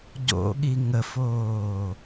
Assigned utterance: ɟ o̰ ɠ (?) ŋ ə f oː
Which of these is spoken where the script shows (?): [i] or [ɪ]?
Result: i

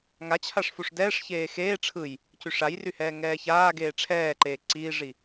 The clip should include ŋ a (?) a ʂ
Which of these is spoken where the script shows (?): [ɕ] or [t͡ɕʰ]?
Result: t͡ɕʰ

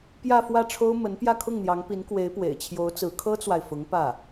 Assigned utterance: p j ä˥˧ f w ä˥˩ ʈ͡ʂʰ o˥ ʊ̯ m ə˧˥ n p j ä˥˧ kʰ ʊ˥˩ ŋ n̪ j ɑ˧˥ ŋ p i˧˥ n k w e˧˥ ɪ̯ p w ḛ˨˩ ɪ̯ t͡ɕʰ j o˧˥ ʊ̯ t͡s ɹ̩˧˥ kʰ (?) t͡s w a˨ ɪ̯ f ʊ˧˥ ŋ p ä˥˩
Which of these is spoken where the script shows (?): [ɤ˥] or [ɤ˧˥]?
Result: ɤ˥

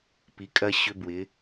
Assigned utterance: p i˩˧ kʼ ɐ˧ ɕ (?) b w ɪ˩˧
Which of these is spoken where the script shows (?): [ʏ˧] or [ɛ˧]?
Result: ʏ˧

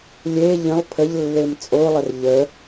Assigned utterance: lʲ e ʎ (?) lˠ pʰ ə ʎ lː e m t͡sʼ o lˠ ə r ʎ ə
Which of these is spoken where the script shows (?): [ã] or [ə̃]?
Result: ə̃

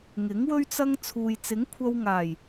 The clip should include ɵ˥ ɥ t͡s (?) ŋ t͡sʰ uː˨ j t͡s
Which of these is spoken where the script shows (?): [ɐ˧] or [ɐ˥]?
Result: ɐ˧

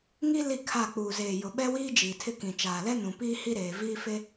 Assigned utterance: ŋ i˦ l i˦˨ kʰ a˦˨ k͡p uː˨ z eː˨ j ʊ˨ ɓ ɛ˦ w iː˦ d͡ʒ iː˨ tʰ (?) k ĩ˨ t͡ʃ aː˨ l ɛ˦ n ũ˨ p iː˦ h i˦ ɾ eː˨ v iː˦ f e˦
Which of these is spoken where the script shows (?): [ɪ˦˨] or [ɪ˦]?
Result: ɪ˦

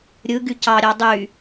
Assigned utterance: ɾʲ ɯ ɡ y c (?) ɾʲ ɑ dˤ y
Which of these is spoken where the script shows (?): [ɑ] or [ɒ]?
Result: ɑ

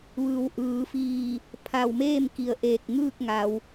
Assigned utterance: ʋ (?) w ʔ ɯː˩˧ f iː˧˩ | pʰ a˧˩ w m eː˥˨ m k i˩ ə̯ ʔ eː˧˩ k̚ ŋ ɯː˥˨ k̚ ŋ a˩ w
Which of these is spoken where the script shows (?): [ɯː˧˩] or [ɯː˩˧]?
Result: ɯː˩˧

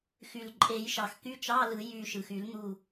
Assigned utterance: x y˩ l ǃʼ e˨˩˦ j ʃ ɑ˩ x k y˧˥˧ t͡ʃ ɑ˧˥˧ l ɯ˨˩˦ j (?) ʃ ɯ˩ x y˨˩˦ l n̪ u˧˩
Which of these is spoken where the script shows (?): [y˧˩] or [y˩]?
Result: y˧˩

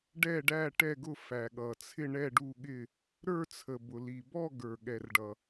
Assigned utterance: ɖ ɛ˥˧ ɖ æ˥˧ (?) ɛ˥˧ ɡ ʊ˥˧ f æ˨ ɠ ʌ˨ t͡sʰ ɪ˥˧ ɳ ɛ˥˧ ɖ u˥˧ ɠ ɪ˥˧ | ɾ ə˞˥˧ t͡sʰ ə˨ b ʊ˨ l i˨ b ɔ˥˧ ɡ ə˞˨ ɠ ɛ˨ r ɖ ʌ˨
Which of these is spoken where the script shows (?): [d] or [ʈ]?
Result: ʈ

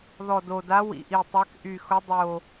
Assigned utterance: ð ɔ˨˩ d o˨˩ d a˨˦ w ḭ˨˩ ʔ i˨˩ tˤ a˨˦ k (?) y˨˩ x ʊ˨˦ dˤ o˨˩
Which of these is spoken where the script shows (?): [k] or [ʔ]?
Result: ʔ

